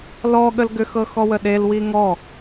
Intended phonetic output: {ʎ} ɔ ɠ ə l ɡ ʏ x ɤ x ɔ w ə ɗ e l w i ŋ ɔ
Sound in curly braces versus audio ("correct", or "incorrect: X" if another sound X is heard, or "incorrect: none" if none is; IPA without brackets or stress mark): incorrect: l